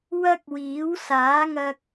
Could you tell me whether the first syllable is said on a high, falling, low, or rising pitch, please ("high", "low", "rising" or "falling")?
high